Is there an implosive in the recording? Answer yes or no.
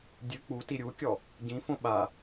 yes